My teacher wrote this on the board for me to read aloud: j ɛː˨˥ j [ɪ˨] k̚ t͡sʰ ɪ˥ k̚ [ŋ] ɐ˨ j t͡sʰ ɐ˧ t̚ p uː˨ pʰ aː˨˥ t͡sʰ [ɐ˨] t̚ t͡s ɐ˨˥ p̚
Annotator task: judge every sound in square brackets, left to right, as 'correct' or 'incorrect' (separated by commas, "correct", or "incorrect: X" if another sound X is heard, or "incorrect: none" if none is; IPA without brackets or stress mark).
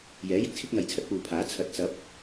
correct, correct, incorrect: ɐ˨˥